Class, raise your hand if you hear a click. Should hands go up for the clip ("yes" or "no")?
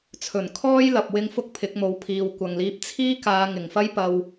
no